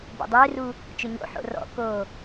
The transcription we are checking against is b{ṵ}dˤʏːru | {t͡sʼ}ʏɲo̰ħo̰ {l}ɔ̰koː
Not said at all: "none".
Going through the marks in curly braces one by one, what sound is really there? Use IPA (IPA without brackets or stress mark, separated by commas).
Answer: o̰, t͡ʃ, r